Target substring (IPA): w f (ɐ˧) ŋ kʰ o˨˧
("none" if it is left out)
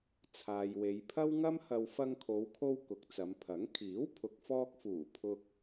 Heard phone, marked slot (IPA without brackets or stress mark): ɐ˧